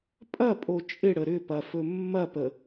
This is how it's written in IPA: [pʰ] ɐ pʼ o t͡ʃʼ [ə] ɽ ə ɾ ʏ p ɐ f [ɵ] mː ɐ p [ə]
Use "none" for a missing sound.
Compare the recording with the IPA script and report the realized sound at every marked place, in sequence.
pʼ, ɪ, ɵ, ə

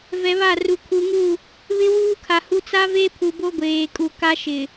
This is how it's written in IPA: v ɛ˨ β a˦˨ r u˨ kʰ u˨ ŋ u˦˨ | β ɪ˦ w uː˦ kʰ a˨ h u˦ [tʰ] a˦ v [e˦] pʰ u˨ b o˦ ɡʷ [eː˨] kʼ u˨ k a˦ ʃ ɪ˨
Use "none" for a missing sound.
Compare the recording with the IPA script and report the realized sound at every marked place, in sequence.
t͡s, e˦, eː˨

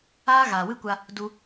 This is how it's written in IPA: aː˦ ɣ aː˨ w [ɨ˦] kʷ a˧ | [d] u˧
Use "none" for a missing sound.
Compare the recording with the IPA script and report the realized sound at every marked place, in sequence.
ɨ˦, d

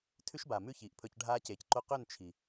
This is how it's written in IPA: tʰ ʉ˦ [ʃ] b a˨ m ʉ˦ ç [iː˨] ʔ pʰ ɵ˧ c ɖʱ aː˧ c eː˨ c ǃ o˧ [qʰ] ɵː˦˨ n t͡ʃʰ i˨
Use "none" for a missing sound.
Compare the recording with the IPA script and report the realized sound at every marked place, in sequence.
ʃ, iː˨, q

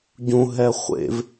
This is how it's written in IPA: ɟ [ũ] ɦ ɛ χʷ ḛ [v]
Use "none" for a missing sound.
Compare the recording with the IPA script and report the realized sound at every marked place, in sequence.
ũ, v

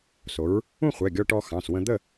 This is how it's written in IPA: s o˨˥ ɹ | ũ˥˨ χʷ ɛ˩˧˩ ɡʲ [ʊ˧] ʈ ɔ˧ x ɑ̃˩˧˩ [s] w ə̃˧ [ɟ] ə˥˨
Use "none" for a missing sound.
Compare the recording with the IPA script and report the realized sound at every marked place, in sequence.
ɔ˧, s, d̪

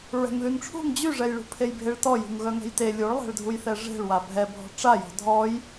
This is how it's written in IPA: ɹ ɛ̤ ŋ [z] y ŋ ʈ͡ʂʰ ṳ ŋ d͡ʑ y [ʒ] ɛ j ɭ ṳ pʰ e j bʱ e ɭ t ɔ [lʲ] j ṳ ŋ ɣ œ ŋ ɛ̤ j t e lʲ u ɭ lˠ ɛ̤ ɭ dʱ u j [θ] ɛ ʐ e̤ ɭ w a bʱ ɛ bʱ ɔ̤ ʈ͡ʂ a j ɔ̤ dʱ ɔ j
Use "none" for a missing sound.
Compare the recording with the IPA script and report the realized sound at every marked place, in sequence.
ð, ʐ, none, θ

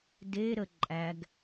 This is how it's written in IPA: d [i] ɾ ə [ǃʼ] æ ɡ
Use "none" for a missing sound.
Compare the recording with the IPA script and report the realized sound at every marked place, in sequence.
e, ǃʼ

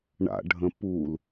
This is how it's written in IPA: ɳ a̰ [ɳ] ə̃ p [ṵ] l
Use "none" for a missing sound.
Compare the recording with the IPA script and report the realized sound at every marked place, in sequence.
ɖʱ, u

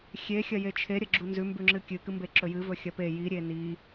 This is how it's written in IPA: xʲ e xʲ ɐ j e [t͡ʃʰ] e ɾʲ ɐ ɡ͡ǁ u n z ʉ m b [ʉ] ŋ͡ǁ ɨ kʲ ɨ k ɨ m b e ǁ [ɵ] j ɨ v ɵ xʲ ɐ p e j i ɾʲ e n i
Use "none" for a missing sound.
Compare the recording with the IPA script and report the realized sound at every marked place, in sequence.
t͡ʃʰ, ʉ, ɵ

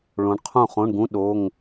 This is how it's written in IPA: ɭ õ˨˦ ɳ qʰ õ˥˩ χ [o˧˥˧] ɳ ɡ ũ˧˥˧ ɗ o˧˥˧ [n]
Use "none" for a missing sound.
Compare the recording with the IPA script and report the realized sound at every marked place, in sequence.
õ˧˥˧, ŋ

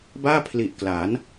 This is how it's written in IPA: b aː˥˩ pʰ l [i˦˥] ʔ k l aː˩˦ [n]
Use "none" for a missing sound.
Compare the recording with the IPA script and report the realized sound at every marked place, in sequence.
i˨˩, n

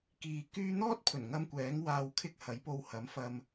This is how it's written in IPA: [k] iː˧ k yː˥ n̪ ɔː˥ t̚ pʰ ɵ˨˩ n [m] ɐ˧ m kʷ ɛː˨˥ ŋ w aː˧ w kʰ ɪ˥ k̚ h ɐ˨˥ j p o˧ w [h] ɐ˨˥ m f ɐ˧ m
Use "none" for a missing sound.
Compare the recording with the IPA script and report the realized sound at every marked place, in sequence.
k, ŋ, h

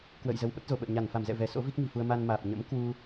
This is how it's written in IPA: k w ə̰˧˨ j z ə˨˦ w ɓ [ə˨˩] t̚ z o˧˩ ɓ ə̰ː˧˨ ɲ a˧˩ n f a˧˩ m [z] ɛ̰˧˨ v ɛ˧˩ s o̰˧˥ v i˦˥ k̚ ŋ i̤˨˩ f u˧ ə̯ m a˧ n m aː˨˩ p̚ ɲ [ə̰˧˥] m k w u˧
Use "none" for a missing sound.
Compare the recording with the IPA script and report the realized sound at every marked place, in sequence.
ə˦˥, z, ə̰˧˥

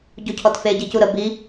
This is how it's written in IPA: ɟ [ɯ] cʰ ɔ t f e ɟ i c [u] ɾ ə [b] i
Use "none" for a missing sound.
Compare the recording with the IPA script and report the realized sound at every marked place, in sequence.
u, u, b

